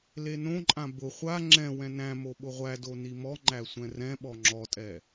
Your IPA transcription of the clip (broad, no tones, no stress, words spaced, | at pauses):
lenõǃʼã bʊ χʷa ŋ͡ǁɛ̃wɛ̃ næ̃mo ɓʊʁʷædo nimɔŋ͡ǃæ sʷɛ̃rɛ̃ɓɔ ŋ͡ǁɔtʼɛ